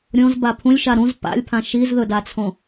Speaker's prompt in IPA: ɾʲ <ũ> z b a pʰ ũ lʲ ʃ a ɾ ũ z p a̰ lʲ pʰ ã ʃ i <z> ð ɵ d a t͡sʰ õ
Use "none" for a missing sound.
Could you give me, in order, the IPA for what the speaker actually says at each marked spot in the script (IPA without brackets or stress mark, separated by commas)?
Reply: õ, z